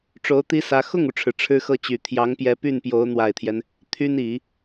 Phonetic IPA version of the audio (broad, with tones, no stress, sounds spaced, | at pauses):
ʈ͡ʂ o˧˥ ʊ̯ t̪ i˥ s ä˧˥ x ʊ˥˩ ŋ u˩ ʈ͡ʂʰ ɻ̩˩ ʈ͡ʂʰ ɻ̩˥ x ɤ˥˩ t͡ɕ y˨˩ t̪ʰ j ɑ˧˥ ŋ p j ɛ˧˥ p y˥˩ n p j o˧˥ ʊ̯ n̪ w a˨˩ ɪ̯ t̪ʰ j ɛ˦ n | t̪ʰ y˥ n i˨˩˦